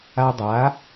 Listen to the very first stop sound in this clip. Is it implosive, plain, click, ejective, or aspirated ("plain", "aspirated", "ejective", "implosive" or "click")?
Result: plain